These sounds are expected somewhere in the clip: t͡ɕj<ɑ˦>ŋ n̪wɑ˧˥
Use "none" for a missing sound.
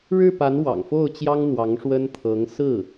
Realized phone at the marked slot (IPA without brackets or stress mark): ɑ˥